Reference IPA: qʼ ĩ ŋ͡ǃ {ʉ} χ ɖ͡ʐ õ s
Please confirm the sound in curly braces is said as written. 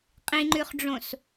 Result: yes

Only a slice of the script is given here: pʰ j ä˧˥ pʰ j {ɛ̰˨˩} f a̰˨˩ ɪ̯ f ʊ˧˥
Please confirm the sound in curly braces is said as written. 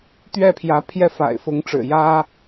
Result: no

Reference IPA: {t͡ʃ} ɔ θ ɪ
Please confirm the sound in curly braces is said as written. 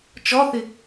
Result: yes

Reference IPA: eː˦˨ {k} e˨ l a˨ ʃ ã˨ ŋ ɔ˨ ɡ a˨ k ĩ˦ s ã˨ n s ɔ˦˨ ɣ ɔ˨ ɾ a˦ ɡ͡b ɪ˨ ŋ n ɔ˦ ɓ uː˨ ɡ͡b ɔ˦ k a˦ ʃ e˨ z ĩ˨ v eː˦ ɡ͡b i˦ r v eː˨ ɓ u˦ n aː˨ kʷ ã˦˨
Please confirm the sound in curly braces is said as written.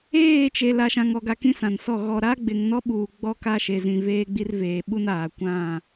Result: no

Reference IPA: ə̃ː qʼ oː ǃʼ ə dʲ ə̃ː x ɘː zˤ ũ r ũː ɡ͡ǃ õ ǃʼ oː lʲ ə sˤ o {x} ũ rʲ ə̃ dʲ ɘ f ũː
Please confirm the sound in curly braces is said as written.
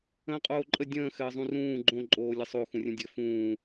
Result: yes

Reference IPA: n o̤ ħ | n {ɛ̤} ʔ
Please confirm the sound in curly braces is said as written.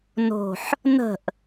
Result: no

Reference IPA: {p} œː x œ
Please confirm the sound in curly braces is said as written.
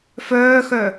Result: no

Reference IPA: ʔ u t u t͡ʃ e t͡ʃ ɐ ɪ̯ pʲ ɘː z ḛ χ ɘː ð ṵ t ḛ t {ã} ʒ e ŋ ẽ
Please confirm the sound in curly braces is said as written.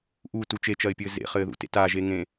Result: no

